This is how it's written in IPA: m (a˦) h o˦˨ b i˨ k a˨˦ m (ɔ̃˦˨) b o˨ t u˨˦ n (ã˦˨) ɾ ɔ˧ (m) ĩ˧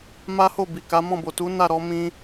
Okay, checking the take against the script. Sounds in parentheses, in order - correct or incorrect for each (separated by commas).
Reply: correct, correct, incorrect, correct